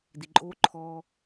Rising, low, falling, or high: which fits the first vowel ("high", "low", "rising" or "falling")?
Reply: low